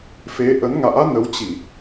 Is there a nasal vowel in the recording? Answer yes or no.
no